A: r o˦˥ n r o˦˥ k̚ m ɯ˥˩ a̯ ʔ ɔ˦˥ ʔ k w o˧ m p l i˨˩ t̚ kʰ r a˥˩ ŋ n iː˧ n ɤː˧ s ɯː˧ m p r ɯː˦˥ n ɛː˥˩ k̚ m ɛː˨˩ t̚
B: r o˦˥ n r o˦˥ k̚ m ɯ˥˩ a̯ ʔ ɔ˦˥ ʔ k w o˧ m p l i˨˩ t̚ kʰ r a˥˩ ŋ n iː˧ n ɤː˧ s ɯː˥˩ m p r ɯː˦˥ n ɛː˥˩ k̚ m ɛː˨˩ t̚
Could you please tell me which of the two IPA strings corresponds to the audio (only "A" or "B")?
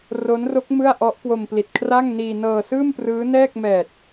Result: B